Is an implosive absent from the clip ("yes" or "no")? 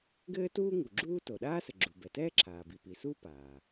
no